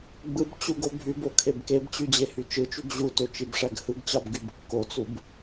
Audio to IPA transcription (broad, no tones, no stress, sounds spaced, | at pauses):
ɡ͡b ɯ b t͡ɕ u ɡ o bʱ y b o kʰ e b k e b t͡ɕ y d͡ʑ e h y t͡ʃ ɯ t͡ʃ y ɡ ʑ u t ø t͡ʃ i b ʂ æ ɡ h ɯ ɡ t͡ɕ ɑ b ɡ y b kː o t͡s u b